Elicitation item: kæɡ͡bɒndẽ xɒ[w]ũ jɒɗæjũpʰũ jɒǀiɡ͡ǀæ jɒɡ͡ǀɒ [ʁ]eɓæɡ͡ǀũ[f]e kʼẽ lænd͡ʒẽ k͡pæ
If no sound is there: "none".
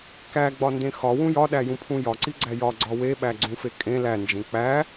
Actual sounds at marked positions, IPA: w, w, f

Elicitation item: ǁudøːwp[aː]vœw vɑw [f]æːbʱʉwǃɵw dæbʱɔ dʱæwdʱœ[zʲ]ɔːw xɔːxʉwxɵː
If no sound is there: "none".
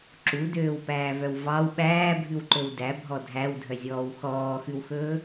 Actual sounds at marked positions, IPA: æː, ɓ, zʲ

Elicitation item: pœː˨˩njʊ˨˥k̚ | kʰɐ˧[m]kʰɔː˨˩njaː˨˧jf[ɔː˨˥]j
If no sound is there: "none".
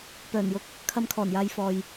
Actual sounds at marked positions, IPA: m, ɔː˨

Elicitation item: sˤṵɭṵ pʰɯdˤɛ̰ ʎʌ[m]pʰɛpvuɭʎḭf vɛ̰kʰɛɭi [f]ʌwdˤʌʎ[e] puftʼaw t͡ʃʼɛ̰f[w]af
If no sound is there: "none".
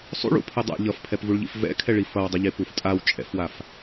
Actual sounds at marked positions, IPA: f, f, e, w

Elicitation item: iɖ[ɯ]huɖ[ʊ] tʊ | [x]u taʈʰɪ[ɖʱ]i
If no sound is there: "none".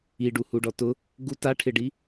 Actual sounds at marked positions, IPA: u, ɔ, ɡ, ɖ

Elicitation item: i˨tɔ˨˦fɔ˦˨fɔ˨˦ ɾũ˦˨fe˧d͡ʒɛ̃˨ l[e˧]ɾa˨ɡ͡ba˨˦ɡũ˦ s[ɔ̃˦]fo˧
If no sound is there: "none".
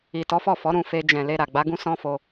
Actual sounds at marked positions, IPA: e˧, ɔ̃˦

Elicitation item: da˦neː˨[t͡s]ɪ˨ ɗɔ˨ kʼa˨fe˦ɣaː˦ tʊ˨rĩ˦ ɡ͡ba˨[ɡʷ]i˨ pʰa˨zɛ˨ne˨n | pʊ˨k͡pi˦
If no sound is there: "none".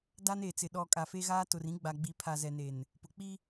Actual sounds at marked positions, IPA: t͡s, ɡ͡b

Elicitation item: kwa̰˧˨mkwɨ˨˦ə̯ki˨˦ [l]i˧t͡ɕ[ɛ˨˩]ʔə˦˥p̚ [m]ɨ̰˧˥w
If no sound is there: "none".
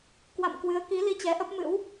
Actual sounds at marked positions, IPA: l, ɛ˨˦, m

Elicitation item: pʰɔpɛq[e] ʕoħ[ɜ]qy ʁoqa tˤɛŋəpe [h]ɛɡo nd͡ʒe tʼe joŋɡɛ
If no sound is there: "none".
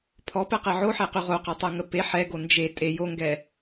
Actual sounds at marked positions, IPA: ɛ, ɛ, ħ

